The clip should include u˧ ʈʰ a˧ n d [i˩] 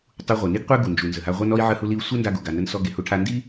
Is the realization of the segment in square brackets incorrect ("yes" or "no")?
yes